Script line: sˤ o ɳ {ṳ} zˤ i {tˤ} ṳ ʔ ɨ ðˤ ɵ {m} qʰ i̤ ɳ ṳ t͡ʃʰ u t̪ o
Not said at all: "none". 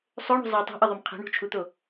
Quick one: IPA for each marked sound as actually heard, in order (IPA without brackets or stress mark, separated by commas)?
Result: ṳ, tˤ, m